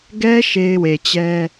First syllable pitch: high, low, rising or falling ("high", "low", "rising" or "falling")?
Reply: high